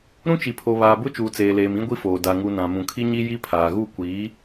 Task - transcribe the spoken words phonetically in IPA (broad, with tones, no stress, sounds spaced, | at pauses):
ɾ ũ˦ t͡ʃ i˨ pʰ o˨ β aː˨ b ʊ˦ t͡ʃ uː˨ t͡s eː˨ l eː˨ m ĩ˦ ɡʷ i˦ f oː˨ d a˨ ŋ u˨ n ã˨ m ũ˨ kʰ i˦ ɲ i˦ j i˦ pʰ aː˨ ɣ u˦˨ kʷ iː˨˦